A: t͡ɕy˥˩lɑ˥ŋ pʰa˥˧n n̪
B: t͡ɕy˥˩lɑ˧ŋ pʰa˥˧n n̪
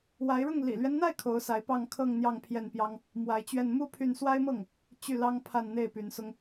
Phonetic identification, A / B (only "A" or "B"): A